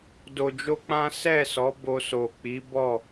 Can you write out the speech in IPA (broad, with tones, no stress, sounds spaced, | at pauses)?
d o˧ d͡ʒ o˦ k͡p ã˦ s ɛ˦˨ s ɔ˨˦ b o˧ s o˨ k͡p i˨˦ b ɔ˦˨